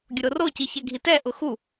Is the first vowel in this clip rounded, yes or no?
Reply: yes